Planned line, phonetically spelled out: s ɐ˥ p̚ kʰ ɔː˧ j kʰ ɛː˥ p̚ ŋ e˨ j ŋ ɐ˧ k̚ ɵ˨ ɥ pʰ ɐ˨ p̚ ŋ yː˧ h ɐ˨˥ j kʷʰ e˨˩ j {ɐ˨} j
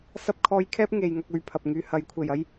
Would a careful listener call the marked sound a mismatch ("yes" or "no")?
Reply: yes